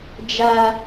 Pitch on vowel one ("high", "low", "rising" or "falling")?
high